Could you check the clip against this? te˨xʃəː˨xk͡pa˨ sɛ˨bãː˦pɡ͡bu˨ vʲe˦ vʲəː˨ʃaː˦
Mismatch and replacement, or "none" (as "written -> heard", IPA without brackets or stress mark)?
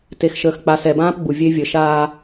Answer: none